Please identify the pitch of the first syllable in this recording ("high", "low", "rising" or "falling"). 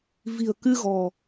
low